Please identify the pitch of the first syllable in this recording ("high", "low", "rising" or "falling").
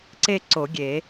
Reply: falling